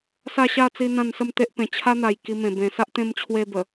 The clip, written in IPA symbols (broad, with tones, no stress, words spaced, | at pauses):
sa˥˧ɕa˥˧t͡si˧ n̪ã˥˧nsə˥˧mt̪e˦ʔ pẽ˨˩t͡ɕʰa˦n̪a˨˩j ki˧mẽ˨˩ bẽ˨˩sa˦ʔt̪ẽ˧m t͡ɕʰwe˧bə˨˩